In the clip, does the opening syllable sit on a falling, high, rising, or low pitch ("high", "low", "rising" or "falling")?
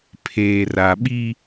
low